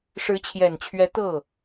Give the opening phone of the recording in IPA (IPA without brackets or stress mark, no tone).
ʂ